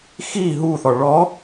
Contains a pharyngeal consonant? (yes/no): no